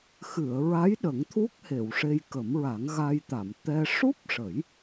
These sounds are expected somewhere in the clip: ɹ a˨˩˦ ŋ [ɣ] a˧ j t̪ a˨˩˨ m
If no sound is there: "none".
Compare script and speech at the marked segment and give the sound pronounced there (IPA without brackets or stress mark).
ɣ